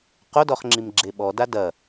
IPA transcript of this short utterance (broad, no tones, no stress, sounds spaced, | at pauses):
q o d ɔ χ ŋ͡ǁ i m ɡ͡ǁ e ɓ ɔ d a d ɐ